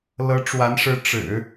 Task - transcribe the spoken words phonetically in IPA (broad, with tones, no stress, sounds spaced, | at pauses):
l ɤ˧˥ ʈ͡ʂ w a˧˥ n ʂ ɻ̩˧˥ ʈ͡ʂ ɻ̩˨˩˦